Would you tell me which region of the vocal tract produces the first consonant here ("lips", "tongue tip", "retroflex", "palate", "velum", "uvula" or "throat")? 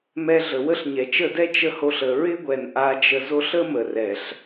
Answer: lips